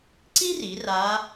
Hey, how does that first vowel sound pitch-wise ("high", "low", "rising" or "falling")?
high